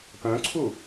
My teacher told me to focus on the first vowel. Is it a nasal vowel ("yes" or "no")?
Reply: yes